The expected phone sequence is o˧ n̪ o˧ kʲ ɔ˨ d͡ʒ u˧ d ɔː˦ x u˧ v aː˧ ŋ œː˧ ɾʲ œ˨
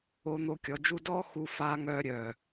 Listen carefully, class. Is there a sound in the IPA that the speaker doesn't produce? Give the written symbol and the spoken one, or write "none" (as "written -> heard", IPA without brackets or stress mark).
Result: v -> f